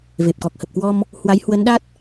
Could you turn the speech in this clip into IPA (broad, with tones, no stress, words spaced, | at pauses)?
ve˨˩p̚kɔ˨˩k̚hə˨˩p̚kwɔ˧m | hwa˨˦jhwə˨˦nɗa˦˥t̚